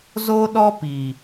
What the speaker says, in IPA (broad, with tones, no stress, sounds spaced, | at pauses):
z o˦ ɗ ɔ˦ p i˨